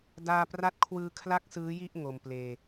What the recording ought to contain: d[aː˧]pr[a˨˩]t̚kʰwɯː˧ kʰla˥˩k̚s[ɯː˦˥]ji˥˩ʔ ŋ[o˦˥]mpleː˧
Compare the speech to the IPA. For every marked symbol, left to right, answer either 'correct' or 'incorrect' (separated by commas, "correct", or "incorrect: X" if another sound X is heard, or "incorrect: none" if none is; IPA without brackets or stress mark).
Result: correct, incorrect: a˦˥, correct, incorrect: o˧